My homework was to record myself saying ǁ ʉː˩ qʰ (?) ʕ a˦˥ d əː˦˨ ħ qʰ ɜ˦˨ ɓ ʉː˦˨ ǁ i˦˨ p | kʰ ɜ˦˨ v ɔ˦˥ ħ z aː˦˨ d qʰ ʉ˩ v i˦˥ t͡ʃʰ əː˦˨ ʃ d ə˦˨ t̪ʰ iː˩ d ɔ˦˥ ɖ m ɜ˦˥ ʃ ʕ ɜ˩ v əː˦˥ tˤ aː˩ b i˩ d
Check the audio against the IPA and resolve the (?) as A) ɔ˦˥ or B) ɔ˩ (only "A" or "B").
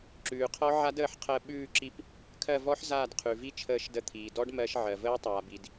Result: A